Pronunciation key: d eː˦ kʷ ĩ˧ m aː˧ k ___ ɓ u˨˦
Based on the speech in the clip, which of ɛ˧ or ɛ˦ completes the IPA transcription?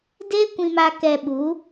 ɛ˧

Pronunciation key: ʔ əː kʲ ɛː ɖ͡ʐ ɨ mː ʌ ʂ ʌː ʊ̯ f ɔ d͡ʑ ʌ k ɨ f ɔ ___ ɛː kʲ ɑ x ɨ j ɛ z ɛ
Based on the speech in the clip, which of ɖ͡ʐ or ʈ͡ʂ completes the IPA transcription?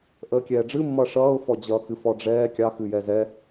ɖ͡ʐ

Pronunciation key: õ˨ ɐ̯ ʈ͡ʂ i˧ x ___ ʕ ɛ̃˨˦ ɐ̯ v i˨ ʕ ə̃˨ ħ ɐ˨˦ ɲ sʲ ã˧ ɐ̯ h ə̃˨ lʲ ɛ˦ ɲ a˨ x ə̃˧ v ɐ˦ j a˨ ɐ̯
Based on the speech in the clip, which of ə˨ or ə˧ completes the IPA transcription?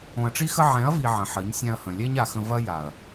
ə˧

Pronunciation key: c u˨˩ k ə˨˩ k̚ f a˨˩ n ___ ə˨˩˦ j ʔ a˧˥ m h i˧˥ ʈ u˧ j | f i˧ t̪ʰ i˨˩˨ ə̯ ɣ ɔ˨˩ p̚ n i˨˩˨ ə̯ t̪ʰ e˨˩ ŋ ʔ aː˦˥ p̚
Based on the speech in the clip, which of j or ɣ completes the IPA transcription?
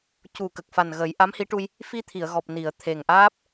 ɣ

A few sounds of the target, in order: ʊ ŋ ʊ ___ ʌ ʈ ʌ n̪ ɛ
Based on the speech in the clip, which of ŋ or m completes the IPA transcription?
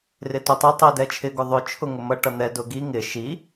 m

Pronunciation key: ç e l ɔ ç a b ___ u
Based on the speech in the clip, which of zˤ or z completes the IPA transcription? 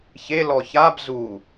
z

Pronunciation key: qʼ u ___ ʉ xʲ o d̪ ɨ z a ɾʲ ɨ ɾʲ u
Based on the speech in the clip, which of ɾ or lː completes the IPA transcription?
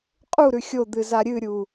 ɾ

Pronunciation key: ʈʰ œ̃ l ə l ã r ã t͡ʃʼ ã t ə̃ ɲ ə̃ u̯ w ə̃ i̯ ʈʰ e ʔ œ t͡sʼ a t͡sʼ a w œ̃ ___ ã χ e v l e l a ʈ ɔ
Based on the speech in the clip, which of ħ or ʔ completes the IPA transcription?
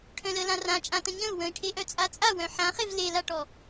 ħ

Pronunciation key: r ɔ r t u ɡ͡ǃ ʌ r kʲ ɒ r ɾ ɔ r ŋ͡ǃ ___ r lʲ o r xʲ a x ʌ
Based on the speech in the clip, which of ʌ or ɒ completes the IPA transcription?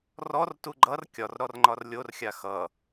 ɒ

